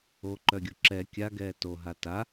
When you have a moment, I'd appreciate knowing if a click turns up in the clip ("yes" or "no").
yes